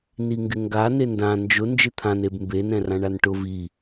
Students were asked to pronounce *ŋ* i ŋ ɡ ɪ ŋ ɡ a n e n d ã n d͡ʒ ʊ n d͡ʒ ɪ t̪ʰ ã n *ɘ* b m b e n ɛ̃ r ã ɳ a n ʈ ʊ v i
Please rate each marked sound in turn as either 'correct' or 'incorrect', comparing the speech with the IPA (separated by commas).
incorrect, incorrect